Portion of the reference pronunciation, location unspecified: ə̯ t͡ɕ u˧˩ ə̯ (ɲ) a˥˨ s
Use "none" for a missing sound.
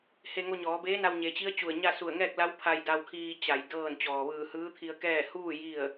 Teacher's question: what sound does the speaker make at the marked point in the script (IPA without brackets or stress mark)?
ɲ